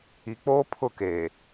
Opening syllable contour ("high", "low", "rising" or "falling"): low